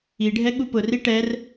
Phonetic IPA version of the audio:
i ɖʱ ɛ ɠ u p ʊ r i ʈ ɛ r

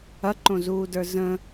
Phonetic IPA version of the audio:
ɐ ǃ õ z uː d ə˞ z ə̃

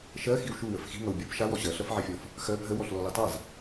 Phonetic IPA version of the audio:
ʃ ɜ x i w ʃ u w ə f x i̤ ŋ ʌ w bʲ o p ʃ a w ɔ ɕ ɜ ɬ ʌ f ʕ ɜ fʲ ɔ f | x ɜ p ɦ ə w ɔ ɬ l ɔ l i tˤ a z

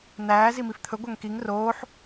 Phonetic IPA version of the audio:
n̪ æː z i m i f t̪ʰ ɵ ɡʷ æ ŋ k i ŋ r oː ħ

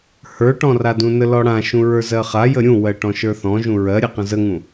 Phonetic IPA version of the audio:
h ə˞ ʈ ɔ̃ r a d ũ n ə l ɔ ɽ ã ʃ ũ ɹ ə˞ z ɜ χ a j ə ɾʲ ũ w ɜ ʈ ɔ̃ ʃ ə˞ θ ɔ̃ ʒ ũ ɹ ɜ ɾʲ ɛ q ə̃ z ə ŋ ũ

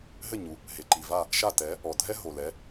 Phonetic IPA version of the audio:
ɦ ɘ˥˩ ɲ u˩ | ɦ e˩ ǃ i˩ v a˥˩ | ʃ a˥˩ t ɛ˩˥ | ɔ˩ dʱ ɛ˥ ɦ o˩ l ɛ˩˥

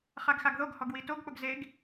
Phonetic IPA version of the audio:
χ a ɡ x a ɡ ð o ɡ h ɔ ɡ w i t o ɡ k͡p ʊ ɡ z e ɡ

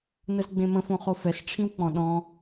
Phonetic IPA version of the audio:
n ə z ɡ͡b ẽ m ə̃ f õ χ o f ɛ s ʈ͡ʂʰ ĩ w k͡p ɔ̃ ɗ ɔ̃

